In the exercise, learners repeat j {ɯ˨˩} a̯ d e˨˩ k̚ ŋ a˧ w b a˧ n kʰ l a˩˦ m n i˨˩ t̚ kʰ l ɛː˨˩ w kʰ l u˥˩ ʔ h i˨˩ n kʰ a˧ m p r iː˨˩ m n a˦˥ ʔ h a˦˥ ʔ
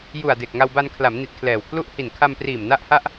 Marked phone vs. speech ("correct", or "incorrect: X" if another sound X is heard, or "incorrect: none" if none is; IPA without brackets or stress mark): incorrect: u˨˩